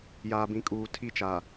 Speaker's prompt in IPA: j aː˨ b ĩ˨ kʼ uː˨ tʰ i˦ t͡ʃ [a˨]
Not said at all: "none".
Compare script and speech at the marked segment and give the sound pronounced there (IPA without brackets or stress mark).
a˨